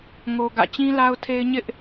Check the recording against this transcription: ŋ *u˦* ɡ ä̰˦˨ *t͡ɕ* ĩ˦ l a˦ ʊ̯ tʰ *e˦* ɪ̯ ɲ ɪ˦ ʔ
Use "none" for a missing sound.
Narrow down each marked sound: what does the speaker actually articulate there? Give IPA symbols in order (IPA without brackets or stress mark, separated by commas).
o˦, t͡ɕ, e˦